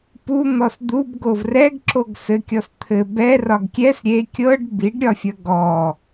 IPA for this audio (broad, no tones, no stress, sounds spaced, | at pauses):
p u n̪ ɔ s d̪ u b ɡ o v r ɛ ɡ ǁ o ɡ s ɘ kʲ ɔ s t̪ʰ ɘ b ɛ r ɒ ɡ kʲ ɛ s ɾʲ e kʲ ɤ ɖ b i ɖ ɾʲ ɒ fʲ ɐ ɡ ɔ